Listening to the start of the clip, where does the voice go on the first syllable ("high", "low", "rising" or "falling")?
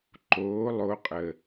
rising